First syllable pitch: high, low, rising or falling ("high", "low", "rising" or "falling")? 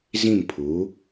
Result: falling